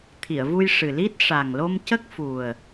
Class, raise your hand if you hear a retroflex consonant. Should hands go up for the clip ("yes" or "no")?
yes